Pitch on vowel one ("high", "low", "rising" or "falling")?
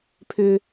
low